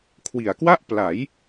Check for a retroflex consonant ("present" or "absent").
absent